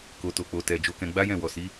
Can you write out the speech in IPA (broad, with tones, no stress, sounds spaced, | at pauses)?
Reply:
k o˨ t o˨ k͡p o˨ t ɛ˨ d͡ʒ o˧ k ɛ̃˧ ɡ͡b a˦ j ɛ̃˦˨ w ɔ˨ s i˨˦